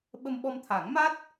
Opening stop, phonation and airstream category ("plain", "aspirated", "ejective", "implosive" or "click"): implosive